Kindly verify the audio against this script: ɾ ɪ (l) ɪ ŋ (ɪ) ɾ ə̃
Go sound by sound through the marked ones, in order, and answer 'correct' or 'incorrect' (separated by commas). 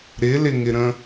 correct, correct